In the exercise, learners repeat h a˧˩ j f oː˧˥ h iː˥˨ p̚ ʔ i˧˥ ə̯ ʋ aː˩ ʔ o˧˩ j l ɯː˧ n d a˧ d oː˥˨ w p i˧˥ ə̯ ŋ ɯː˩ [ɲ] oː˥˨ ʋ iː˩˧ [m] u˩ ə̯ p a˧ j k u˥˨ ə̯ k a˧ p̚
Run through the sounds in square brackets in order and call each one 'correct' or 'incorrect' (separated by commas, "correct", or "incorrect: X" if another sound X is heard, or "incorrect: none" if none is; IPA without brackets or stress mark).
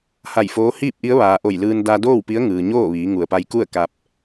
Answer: correct, incorrect: ŋ